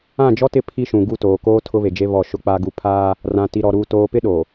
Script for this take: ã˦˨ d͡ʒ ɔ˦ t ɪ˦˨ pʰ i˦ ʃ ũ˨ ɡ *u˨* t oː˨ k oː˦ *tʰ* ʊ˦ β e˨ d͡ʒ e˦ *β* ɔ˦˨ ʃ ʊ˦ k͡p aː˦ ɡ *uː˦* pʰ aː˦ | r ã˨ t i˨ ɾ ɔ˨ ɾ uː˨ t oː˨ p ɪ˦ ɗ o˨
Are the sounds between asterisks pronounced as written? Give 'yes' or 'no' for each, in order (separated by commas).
no, yes, yes, no